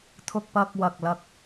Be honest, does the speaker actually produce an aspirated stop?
yes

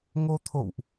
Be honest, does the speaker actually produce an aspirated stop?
yes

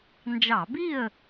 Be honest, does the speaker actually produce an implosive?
no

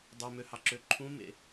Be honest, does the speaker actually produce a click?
yes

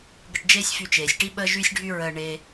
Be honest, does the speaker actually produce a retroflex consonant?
yes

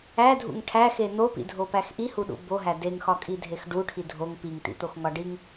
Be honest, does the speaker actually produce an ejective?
yes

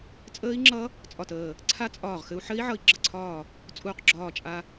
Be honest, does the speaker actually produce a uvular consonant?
yes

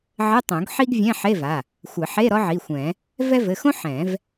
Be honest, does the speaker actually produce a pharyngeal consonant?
yes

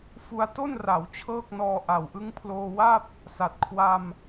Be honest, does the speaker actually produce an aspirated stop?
yes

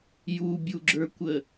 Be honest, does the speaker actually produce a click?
yes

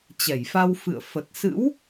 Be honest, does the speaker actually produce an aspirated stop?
no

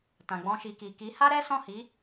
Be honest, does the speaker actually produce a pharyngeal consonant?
no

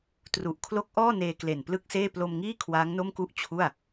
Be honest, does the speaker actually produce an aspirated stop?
yes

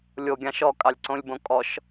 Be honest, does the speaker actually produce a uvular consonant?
no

